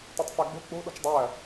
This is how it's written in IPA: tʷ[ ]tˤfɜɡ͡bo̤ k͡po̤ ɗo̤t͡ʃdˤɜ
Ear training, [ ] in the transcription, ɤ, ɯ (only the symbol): ɤ